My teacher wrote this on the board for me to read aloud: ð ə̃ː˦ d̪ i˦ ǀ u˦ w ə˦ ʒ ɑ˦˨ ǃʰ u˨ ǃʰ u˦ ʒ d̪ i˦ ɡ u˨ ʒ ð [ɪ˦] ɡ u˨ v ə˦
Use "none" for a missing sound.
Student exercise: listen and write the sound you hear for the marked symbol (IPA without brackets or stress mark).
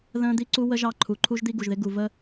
ɪ˦